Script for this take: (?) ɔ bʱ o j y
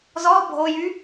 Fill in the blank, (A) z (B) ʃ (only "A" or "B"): A